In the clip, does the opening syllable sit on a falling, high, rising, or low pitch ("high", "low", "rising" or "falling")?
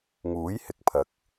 rising